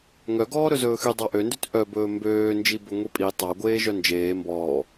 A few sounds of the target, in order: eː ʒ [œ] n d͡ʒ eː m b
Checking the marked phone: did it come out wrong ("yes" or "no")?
no